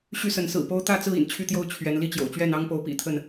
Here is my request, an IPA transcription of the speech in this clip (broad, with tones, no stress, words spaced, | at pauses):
ɕy˥˨sə˨˦n sɹ̩˨˩po˦ʊ̯ t̪ä˥˨t͡sɹ̩˥˨ ḭ˨˩nt͡ɕʰy˥˨t̪jo˥˨ʊ̯ t͡ɕʰɥɛ˨˦n li˥˨t͡ɕjo̰˨˩ʊ̯t͡ɕɥɛ˥˨n ɑ˦ŋpo˨˦ʊ̯ pḭ˨˩t̪ʰə˥˨n